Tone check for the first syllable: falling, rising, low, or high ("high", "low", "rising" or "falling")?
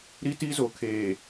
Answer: high